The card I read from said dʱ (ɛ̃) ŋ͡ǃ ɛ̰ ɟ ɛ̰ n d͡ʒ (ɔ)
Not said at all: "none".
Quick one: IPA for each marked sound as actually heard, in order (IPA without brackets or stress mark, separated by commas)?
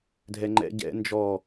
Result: ɛ, ɔ